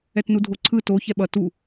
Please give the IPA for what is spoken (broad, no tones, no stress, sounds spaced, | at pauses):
ɛ t n u dʱ o ǀʰ ɯ t o ç ɛ ɓ ʌ t u